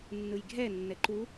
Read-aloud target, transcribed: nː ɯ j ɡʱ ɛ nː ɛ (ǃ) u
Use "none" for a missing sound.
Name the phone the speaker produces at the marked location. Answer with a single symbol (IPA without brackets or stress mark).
ǃ